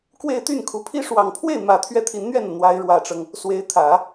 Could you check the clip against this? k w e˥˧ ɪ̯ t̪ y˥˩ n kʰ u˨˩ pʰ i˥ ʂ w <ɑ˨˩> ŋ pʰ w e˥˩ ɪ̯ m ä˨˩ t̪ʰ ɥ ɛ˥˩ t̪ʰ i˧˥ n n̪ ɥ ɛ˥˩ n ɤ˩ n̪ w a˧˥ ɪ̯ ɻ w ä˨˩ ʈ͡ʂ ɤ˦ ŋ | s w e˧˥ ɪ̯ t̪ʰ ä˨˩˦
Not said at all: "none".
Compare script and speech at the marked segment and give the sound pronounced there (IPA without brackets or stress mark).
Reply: ɑ˨˩